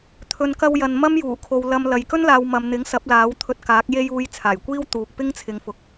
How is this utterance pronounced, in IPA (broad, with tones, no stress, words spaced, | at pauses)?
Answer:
t̪ʰɵ˨nkɐ˧wjɐ˨n mɐ˥mjuː˨˩kʰo˨w lɐ˧mlɐ˨j kɵ˥nlaː˨w mɐ˨mn̪ɪ˨˥ŋsɐ˨˥p̚ laː˨˥wt̪ʰɵ˧t̚kaː˨˥k̚ je˧j uː˨˧j t͡sʰaː˨˩jkʷiː˥w t̪uː˨k̚pɪ˥ŋt͡sʰɪ˨˧ŋ fʊ˨k̚